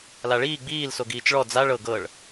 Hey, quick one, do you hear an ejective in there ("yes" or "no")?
no